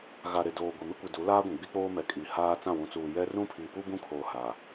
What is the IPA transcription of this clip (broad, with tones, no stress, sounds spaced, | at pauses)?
ɣ a˨ ɾ e˨ d oː˨ ɡʷ i˨ m ɪ˦ kʷ i˨ d u˨˦ l aː˦ ɡʷ ĩ˨ ɡ͡b i˦ k͡p oː˦ m ɛ˨ kʼ i˨ h aː˦ t͡s ã˦˨ w ũ˨ t͡s uː˨ j ɛ˦ r ũ˦ pʰ i˨ p u˦ b ũ˦ kʰ oː˨ h a˨